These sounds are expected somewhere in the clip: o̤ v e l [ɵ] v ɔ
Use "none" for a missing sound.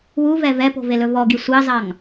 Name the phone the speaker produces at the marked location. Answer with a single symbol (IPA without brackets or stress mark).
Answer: ɵ